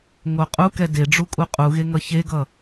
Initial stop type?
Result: ejective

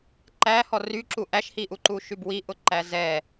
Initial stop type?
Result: click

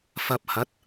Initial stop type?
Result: plain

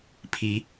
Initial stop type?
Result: aspirated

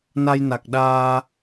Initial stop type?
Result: plain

